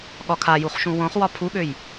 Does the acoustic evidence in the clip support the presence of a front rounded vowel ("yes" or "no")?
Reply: yes